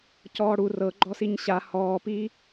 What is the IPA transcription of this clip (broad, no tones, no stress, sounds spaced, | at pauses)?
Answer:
c ɔː ɽ u r ɤ ɡ͡ǃ ɔ s i ɲ ɕ a h ɔː p iː